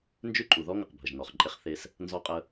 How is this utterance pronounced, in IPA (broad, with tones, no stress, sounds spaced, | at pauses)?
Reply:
n d͡ʒ ʉ˦ ǃʼ u˨ ð ɔ˦ ŋ ə˨ q bʱ ə˨ ʒ n ɔ˨ χ ǃʼ e˦ χ θ e˦ s | n z ɔ˦ qʼ ə˦